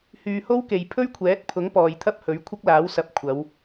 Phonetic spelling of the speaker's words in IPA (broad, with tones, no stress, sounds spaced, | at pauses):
h yː˨ h o˥ w k e˨ j pʰ ɵ˥ ɥ kʷʰ ɛː˨˥ t̚ pʰ ʊ˨˥ ŋ p ɔː˨ j t̪ʰ ɐ˥ p̚ h ɵ˨˥ ɥ kʷʰ ɐ˥ k̚ l aː˨˥ w s ɐ˨˥ p̚ kʷʰ ɐ˨˧ w